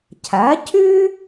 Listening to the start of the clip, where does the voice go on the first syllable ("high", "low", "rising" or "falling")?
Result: rising